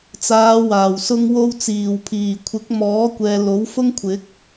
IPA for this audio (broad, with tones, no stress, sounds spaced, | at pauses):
t͡s aː˨˧ w aː˨˩ w s ʊ˧ ŋ w o˧ w t͡s iː˨˩ w pʰ iː˨˩ kʷʰ ɪ˨˥ k̚ m ɔː˨˥ kʷ ɛː˨ l o˨˥ w f ʊ˥ ŋ kʷʰ ɪ˨˥ k̚